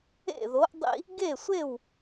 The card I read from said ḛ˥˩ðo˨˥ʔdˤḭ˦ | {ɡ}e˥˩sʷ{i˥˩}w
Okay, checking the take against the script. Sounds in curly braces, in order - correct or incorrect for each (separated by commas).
correct, incorrect